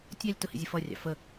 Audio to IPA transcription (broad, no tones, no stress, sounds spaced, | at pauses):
tʲ ɑ lʲ t ʊ h ḭ zʲ ə f ʌ rʲ ɑ̰ f ə